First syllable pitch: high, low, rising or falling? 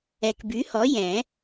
low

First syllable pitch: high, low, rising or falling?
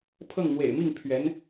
falling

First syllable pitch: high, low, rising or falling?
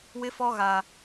high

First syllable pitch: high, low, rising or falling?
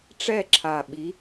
falling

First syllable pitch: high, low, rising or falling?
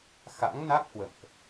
rising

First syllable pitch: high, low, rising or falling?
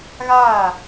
falling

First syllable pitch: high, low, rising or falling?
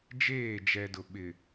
falling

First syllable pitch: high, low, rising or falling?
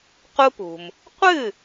high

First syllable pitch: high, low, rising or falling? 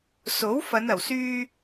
rising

